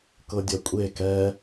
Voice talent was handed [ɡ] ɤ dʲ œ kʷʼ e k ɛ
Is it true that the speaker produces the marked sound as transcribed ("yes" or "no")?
no